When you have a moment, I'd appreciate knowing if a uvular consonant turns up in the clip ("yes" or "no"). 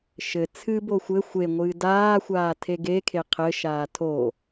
yes